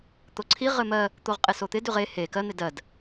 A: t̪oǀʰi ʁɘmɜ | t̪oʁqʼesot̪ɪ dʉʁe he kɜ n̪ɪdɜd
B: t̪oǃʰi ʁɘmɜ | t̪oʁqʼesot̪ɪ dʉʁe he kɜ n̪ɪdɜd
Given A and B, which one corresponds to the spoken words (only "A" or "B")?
A